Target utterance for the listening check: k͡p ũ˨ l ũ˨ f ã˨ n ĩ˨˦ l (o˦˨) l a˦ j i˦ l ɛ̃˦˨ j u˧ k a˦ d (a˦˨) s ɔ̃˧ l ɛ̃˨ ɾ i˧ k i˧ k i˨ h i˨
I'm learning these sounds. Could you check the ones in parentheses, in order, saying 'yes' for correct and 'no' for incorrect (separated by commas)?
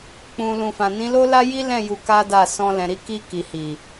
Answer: no, yes